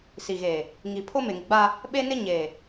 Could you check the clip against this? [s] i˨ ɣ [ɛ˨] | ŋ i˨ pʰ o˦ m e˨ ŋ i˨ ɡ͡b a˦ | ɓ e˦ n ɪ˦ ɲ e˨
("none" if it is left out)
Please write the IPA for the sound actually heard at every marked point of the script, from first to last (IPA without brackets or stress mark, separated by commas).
s, e˨